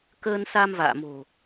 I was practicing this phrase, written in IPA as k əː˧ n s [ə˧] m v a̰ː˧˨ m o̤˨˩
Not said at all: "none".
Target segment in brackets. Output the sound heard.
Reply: a˧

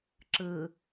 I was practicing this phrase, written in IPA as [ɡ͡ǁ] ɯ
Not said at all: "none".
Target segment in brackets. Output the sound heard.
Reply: ǁ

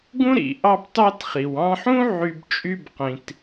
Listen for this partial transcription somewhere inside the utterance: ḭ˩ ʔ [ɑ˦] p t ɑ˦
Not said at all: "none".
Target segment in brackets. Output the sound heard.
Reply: ɑ˦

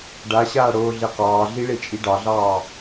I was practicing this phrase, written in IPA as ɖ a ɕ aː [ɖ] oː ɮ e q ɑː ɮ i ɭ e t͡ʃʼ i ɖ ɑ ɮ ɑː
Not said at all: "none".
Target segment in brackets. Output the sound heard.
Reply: ɽ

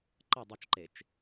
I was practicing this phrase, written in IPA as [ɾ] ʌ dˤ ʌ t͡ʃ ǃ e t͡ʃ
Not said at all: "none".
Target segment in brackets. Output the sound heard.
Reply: ǃ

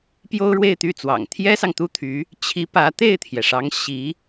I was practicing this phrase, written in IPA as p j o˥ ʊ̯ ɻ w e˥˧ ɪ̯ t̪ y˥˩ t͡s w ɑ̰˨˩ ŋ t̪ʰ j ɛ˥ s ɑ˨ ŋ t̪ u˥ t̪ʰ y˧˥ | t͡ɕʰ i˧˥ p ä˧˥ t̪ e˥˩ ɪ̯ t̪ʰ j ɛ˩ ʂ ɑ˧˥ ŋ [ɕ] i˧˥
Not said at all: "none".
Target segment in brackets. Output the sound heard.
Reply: ɕ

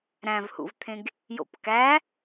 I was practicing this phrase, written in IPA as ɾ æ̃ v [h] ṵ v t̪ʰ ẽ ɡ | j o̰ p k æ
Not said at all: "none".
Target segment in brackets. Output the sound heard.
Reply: h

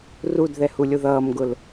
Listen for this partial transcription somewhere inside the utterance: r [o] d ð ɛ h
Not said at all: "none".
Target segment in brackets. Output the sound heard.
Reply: u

